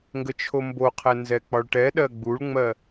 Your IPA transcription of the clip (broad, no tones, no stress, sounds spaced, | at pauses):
ŋ ɡ ə t͡ʃʰ o m b o qʰ ɛ n z ɛ k͡p ɒ ɭ ʈ ɛ ɗ ɜ ɡ͡b u ɭ ŋ͡m ɜ